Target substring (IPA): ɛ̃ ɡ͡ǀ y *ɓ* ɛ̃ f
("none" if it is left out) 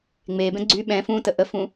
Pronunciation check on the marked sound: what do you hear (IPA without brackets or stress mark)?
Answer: ɓ